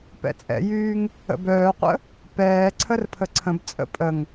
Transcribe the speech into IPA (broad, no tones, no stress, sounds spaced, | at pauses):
p ɛ̰ t͡sʼ ɛ̰ j yː ŋ | ə̰ b œː qʷ ə̰ | p ɛː ǀʰ ə r pʰ ə ǀʰ ə̃ b t͡sʼ ə̰ pʼ ə ŋ